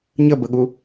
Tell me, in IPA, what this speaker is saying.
ɲ ə b ə ɠ u

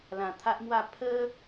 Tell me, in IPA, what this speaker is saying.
l ã˨˩ t̪ʰ a˦ ʔ m w a˥˧ pʰ ə˦

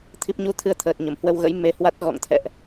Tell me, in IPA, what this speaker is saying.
t̪ʰ i˦˥ p̚ ɲ u˧ t̪ʰ ɨ˧ ə̯ t̪ʰ əː˨˩ t̚ ɲ ə˧˩ m h w ə˧ w ɣ ə̰˧˥ j m e˧ h w a˦˥ t̚ ɣ ɔ̰˧˨ ŋ t̪ʰ ɛ̰˧˨ ʔ

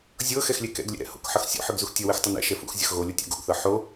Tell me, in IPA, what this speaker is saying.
zʲ ɤ x ɛ x lʲ ɛ k ɛ̰ ɡ lʲ ɛ̰ ɾ ɛ̰ h o̰ k ħ ʌ x sʲ o̰ ħ ɯ ɡ z u x tʲ ʌ w ɘ x tˤ ʌ n ɛ̰ ʃ ɛ f ṵ x zʲ ʌ x ɣ o lʲ o tʲ o̰ ɡ o̰ ɡ θ ɤ ħ o

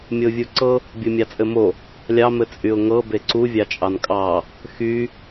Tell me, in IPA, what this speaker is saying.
mʲ ɤ ʊ̯ vʲ u ǀ ɤ | bʲ u mʲ ɑ t͡sʼ ɘ m o | lʲ ɑ m ɘ t͡sʼ y ʊ̯ ŋ ɤ b e ǀ u vʲ ɑ t͡ʃʼ ɑ n kʼ ɑ | x y

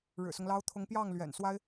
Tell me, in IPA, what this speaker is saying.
ɻ ɻ̩˨˩ s ʊ˦ ŋ l ɑ˥ ʊ̯ t̪ʰ ʊ˧˥ ŋ p j ɑ˥˩ ŋ l ɥ ɛ̰˨˩ n s w a˥ ɪ̯

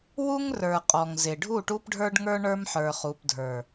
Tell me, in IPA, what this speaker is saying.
w u˦ ŋ r ə˞˨ qʼ ɔ˨ ŋ z ɪ˨ ɖʱ u˦˨ ʈ u˦ p ɖʱ ə˞˦ ɖ ŋ ə˞˦ ɳ ə˞˦ m ħ ə˞˨ χ u˨ p dʱ ə˞˨

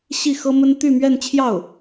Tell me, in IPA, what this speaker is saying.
ɕ i˥˩ x ɤ˥ m ə˥ n t̪ y˥˧ m ɥ ɛ˥˧ n t͡ɕʰ j ɑ˥˩ ʊ̯

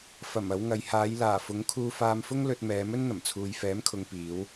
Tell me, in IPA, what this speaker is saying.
f ɐ˨˩ m ɐ˨˧ w ŋ ɐ˨ j h aː˨˧ j l aː˨˩ f ʊ˨˥ ŋ kʰ uː˧ f aː˧ m f ʊ˥ ŋ l ɵ˧ t̚ m ɛː˨˧ m ɵ˥ n n̪ ɐ˨˩ m t͡sʰ uː˨ j f ɛː˨˥ m kʰ ʊ˨ ŋ p iː˨˧ w

